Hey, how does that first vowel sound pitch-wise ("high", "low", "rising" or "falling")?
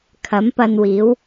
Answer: rising